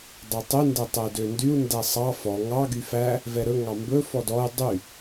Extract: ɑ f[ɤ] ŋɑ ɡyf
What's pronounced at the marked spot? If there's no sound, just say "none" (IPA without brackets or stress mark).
ɔ